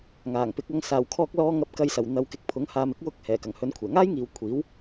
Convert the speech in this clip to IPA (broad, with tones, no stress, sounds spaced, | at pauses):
ŋ aː˨˩ ŋ p ɪ˨˥ k̚ ɐ˧ ŋ s aː˨˩ w kʰ ɔː˧ k̚ l ɔː˧ ŋ ɐ˨˥ p̚ k ɐ˨ j s ɐ˨˩ w n̪ ɐ˨ w k ɪ˨ k̚ pʰ ʊ˨˥ ŋ h aː˨˧ m ɪ˨˥ k̚ w ʊ˧ k̚ h ɛː˨˩ k ɐ˨˩ ŋ h ɵ˨˥ n kʷʰ ɛː˨˩ ŋ aː˥ j ŋ iː˨ w kʷʰ iː˨˥ w